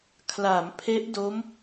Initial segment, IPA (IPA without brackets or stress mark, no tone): kʰ